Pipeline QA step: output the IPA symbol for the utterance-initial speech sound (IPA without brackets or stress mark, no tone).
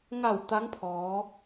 ŋ